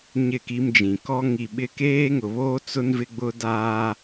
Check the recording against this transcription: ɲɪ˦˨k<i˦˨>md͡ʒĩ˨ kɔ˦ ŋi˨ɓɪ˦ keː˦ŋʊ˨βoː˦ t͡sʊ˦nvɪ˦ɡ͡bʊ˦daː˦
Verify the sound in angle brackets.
incorrect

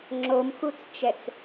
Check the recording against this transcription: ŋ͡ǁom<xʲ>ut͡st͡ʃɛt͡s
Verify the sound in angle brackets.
incorrect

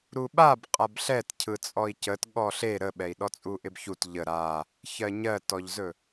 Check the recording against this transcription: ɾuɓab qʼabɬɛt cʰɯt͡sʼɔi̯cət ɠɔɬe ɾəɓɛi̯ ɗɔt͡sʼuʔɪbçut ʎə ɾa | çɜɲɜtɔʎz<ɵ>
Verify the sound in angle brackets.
correct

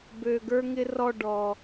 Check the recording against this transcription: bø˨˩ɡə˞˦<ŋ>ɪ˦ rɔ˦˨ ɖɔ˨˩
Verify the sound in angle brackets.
correct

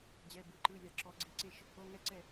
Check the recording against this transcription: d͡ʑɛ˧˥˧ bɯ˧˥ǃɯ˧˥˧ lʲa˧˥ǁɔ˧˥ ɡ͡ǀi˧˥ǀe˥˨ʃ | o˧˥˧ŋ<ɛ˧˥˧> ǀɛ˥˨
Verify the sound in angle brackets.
incorrect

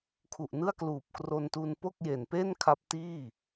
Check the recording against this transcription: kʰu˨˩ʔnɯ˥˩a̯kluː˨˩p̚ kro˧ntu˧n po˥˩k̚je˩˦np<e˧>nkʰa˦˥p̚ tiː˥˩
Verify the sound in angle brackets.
incorrect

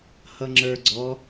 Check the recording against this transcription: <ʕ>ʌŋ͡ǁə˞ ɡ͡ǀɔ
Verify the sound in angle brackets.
incorrect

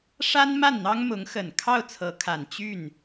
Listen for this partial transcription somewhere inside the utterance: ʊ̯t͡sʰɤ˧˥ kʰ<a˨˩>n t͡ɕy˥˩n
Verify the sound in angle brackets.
correct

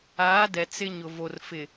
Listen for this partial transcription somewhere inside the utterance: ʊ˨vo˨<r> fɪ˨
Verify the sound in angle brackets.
correct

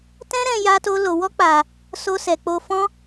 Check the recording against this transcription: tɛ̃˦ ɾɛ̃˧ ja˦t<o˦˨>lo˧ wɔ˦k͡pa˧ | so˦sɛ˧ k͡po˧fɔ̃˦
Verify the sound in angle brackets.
incorrect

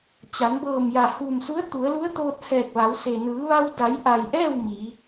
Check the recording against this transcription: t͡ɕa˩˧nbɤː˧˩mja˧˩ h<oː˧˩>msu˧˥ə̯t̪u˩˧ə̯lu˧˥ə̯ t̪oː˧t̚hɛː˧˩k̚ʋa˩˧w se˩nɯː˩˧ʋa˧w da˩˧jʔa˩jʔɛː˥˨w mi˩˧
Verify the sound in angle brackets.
incorrect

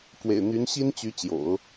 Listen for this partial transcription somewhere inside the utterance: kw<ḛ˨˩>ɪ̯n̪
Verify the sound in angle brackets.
correct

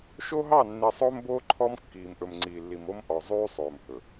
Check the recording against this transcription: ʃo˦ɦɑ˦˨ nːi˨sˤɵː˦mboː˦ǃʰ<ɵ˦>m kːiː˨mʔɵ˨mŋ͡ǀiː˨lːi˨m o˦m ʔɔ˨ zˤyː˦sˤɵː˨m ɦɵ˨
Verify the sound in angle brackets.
incorrect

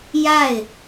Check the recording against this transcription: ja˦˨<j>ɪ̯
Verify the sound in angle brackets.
incorrect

